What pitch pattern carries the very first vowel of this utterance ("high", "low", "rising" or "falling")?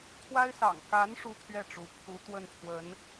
high